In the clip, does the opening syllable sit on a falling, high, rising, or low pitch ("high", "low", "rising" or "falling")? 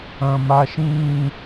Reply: low